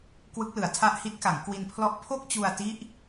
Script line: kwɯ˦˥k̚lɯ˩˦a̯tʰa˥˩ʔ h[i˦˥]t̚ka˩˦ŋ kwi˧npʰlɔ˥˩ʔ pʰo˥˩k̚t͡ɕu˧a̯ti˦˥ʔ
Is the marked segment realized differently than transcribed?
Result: no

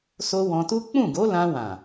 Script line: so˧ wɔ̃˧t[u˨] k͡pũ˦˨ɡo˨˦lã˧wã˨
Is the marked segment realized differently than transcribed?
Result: yes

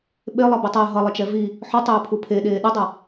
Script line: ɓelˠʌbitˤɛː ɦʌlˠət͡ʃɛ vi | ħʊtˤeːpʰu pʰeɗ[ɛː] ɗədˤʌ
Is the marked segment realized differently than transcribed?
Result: yes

